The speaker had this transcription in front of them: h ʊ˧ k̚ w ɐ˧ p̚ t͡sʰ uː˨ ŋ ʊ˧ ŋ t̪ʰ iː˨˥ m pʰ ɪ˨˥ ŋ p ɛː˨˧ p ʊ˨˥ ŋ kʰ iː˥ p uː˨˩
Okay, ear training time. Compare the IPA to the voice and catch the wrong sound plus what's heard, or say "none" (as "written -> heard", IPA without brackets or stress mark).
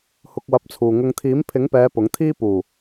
kʰ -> t̪ʰ